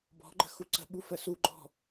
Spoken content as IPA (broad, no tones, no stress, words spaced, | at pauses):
bɔ̤ɡ͡ǃə̤ xuǀə̤ɓu fəsuɡ͡ǃɔ̤